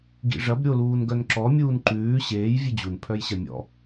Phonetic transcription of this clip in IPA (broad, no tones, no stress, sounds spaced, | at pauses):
ɡ ḭ ʐ ɐ b ɾʲ o l uː n ɡ œ n ǁ ɔ mʲ uː n ǃ ʉː ɕ eː j vʲ ʉ d͡ʑ u n pʰ œ j ɕ ɐ mʲ ɔ̰